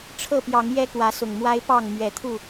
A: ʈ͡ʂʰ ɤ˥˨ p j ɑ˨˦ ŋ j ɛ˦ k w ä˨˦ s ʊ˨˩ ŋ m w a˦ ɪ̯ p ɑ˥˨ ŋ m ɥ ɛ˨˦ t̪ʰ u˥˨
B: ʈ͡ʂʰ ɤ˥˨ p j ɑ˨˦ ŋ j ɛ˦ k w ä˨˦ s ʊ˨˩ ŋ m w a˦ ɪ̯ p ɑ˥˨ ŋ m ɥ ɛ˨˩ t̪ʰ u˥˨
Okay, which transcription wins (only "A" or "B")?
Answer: A